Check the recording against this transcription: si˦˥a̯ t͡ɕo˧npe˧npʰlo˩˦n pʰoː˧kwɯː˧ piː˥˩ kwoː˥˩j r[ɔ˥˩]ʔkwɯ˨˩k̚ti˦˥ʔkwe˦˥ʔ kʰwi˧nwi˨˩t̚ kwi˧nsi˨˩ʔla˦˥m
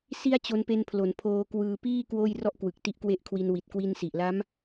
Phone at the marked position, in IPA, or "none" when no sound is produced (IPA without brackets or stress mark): ɔ˥˩